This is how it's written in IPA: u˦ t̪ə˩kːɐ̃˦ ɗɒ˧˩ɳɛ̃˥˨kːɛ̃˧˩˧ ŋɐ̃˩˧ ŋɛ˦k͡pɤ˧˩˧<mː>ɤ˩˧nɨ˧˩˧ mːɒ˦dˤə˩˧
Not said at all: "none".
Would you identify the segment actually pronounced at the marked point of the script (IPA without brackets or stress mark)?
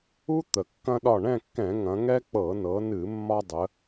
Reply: n